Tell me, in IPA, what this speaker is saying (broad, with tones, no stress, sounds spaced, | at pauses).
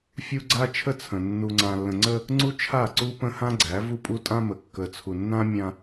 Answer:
fʲ u˦ ɡ͡ǀ a˦ t͡ʃʰ ə˦ t͡sʰ ə̃˨ nː u˨ ŋ͡ǀ ã˨ lː ə̃˨ ŋ͡ǀ ə˦ | ŋ͡ǀ u˦ t͡ʃʰ a˦˨ ǀ u˦ p ə̃˦ h ã˦ ɡ͡ǀ æ˨˦ v u˦ pʼ u˦ tʼ ã˦ m ə˨ kː ə˨ t͡sʰ u˨ nː ã˦ mʲ ã˦